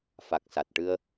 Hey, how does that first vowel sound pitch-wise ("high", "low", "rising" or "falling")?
low